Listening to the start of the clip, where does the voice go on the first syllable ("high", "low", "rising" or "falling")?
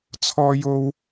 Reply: high